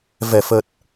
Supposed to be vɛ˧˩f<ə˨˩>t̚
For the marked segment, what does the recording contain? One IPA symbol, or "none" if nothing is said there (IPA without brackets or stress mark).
ə˨˩